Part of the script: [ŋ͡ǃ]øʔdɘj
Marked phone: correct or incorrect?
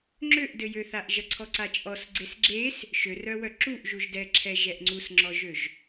incorrect